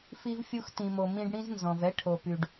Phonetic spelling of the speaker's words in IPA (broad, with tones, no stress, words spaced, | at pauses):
fi˧vfʲu˧xtĩ˨mo˨ mĩ˧ɖɽĩ˦znzɔ̃˨v ɛ˦ʈʰo˨py˨ɖ